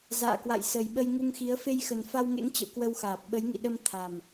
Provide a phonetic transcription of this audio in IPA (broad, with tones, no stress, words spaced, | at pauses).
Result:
za̰ː˧˨kwa̰˧˨jsə˨˩jɓə˧j ŋu˧ŋxi˨˦ə̯ fe˧jxə˨˩n fa˧wŋḛ˧˥ŋt͡ɕə̰˧˨w kwə˧wxaː˨˩p̚ ɓə˨˦jŋḭ˧˨ɗə˧m t̪ʰa˨˩m